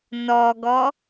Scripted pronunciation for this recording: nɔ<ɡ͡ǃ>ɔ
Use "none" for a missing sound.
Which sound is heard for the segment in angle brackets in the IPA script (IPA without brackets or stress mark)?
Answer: ɡ